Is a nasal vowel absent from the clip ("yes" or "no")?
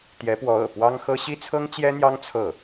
yes